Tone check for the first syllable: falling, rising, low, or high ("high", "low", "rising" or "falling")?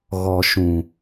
low